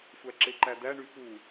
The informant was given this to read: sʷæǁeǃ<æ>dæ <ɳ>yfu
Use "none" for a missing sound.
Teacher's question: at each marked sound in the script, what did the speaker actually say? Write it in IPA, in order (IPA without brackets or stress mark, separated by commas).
æ, ɳ